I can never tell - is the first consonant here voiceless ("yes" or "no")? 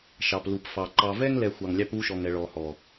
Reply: yes